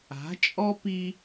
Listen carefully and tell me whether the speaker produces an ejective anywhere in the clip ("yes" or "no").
yes